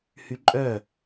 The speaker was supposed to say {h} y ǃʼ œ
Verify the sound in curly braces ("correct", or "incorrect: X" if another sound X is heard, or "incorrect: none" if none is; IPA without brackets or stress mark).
correct